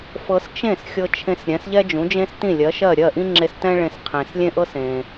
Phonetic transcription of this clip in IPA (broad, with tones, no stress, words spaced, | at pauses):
fɤ˧st͡ʃẽ˥˩s xʲɤ˧t͡ʃʰẽ˧s ɾʲɛ̃˩˥sʎɛ˥d͡ʒũ˩˥d͡ʒẽ˥s tĩ˥˩lʲɜ˩˥ ʃɜ˥˩ ɾʲɜ˥˩ʔĩ˥ŋ͡ǁe˧s tɛ̃˥ ɭẽ˧s qʰẽ˩slʲẽ˥ʔɤ˥sẽ˩